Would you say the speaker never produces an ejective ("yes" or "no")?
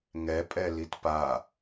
no